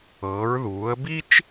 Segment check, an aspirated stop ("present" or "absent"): absent